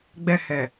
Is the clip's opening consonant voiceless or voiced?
voiced